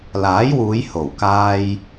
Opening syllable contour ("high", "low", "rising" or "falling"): rising